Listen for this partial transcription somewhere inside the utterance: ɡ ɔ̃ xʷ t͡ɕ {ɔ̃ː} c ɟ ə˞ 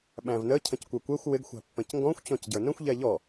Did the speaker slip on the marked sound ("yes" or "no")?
yes